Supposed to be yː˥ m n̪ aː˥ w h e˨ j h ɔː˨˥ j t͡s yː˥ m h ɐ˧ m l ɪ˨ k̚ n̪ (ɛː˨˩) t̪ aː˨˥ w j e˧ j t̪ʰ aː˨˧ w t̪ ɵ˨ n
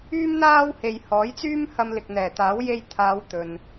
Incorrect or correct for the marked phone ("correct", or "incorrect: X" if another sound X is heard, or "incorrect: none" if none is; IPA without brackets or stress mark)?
correct